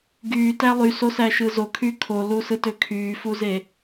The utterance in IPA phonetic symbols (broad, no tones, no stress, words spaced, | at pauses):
ɡyːtæ lˠysosæʃɯ zokʰy kʰolusɯtø kʰyːfuze